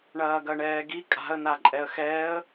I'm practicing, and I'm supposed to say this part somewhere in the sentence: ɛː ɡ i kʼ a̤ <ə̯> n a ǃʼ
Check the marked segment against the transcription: correct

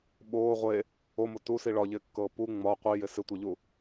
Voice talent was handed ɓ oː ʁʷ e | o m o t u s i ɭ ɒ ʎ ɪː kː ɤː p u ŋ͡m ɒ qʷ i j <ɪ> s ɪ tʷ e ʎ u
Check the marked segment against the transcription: correct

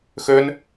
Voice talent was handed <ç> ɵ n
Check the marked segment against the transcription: incorrect: x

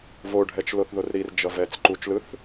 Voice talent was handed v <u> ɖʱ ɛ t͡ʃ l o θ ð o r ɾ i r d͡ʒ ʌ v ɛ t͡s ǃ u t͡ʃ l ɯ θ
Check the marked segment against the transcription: incorrect: o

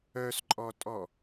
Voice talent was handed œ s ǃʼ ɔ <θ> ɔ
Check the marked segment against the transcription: incorrect: tʼ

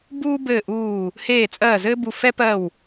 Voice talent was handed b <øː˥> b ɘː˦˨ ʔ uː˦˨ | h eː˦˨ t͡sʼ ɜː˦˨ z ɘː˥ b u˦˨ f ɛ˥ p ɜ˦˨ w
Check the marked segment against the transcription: incorrect: uː˥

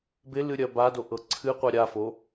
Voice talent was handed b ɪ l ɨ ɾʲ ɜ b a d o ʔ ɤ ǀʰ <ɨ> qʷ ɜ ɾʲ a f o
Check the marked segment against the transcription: correct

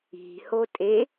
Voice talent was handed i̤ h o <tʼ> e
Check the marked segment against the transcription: correct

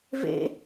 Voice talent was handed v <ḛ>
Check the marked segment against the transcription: correct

